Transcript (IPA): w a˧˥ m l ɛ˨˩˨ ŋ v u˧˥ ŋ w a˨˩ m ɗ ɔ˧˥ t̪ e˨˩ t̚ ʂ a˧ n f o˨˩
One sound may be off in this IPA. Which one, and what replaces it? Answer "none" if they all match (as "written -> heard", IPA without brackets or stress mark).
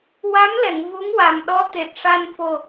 none